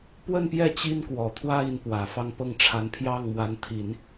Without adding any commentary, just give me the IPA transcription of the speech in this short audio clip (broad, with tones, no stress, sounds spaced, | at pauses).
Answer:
p w ə˥˧ n p j ɛ˥˩ t͡ɕ i˥ n k w ɔ˨˩ t̪ʰ w ä˥ i˧˥ n p w ä˨˩ f ɑ˥˧ ŋ p ɤ˥˩ ŋ ʈ͡ʂʰ a˧˥ n pʰ j ɑ˥˩ ŋ m w a˧˥ n t̪ʰ i˨˩˦ n